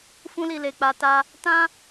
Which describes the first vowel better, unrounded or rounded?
rounded